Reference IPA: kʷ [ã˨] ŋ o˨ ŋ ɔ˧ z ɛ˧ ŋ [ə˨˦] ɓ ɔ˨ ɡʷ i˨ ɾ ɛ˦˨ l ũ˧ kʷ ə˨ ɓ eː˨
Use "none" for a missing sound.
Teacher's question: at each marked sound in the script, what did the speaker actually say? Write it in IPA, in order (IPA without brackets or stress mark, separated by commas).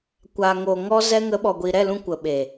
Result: a˨, ə˨˦